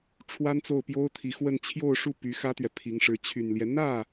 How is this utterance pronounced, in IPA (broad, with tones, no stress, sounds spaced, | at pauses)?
ʈ͡ʂʰ w a˥ n t͡s o˥˩ ʊ̯ p j o˥ ʊ̯ t̪ʰ i˧˥ x w ə˥˧ n t͡ɕʰ j o˥˧ ʊ̯ ʂ u˥˩ p y˧˥ x ä˥ t̪ ɥ ɛ˨ pʰ i˧˥ ŋ ʂ ɻ̩˧˥ t͡ɕʰ y˨˩ n l j ɛ˦ n̪ ä˥˩